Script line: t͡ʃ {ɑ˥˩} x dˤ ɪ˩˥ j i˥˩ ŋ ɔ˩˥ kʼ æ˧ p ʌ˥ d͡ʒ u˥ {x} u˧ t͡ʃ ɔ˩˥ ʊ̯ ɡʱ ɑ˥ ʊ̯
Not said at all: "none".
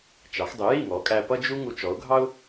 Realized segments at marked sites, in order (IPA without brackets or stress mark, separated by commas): ɑ˩˥, ŋ